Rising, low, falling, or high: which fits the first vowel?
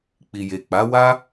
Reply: low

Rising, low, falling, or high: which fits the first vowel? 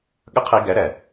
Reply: high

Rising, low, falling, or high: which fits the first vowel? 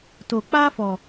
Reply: low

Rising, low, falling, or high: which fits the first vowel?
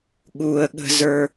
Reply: high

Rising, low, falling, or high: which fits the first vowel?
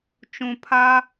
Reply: low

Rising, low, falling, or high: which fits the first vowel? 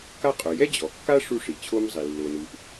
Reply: high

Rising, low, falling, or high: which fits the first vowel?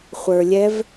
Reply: low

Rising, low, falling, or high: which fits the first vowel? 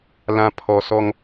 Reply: low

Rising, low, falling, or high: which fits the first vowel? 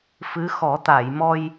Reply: rising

